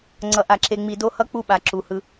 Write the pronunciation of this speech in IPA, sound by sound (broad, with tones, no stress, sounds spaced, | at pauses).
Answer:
ŋ͡ǀ ʌ˨ ʔ a˨ ǁ e˨ ŋ͡m i˨ d o˦ h ʌ˦ k͡p u˦ ɓ a˨ ǁ u˨ h ɯ˦